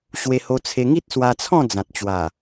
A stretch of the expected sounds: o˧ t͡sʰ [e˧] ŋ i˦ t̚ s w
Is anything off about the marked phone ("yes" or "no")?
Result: no